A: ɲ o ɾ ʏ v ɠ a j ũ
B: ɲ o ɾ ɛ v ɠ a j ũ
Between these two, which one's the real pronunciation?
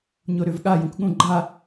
A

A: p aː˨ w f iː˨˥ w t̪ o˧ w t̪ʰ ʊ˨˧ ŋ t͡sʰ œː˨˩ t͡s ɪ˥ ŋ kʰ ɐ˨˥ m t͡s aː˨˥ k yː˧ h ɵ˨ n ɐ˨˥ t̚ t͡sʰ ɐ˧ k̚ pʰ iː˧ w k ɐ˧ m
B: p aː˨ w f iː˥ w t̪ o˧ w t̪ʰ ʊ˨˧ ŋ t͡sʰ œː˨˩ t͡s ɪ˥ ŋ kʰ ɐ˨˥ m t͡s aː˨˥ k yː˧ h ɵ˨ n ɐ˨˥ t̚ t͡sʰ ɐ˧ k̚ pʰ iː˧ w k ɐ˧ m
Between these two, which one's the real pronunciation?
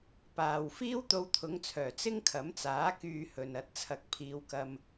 B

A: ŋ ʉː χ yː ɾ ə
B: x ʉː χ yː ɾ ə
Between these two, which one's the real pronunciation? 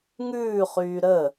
A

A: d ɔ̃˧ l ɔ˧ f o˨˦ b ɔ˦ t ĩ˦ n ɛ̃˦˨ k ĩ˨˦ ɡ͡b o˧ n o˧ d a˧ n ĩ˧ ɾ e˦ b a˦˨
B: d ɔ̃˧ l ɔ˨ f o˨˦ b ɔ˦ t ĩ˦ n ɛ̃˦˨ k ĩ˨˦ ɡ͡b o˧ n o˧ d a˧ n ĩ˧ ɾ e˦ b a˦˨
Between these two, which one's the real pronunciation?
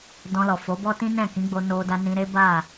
B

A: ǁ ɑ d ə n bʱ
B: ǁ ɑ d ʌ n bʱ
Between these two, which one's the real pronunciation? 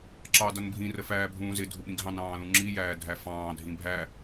B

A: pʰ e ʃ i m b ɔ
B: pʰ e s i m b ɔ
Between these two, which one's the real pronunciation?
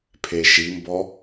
A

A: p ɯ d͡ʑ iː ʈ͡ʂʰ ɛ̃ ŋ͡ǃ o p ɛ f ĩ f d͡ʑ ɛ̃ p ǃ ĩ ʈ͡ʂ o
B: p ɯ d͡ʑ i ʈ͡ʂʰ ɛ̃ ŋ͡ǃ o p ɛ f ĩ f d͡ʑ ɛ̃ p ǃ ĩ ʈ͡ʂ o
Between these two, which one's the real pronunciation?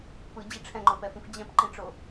B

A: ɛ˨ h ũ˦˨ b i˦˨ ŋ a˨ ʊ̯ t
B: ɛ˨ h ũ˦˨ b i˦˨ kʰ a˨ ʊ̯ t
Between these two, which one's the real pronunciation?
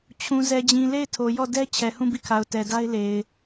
B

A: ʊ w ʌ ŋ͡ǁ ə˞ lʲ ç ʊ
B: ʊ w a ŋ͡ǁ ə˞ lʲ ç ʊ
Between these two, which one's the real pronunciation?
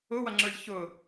A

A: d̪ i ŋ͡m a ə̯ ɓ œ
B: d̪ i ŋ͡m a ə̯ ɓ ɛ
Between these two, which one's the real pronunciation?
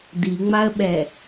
B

